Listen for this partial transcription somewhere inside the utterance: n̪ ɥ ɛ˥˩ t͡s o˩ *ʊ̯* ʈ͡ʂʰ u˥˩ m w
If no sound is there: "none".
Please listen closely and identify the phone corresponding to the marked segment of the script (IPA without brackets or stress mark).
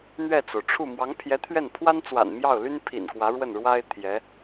ʊ̯